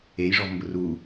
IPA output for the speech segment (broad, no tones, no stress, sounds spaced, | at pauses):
e j ʐ ɔ v m b ʊ r u